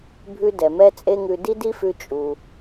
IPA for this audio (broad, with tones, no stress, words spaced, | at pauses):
bʱʉ˥ dɛ˩mɛ˥t͡sʼe˥ŋʉ˧ di˥di˥fʉ˧ t͡ʃʼu˩